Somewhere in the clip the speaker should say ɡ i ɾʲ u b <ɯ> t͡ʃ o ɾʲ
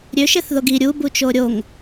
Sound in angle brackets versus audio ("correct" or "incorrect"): incorrect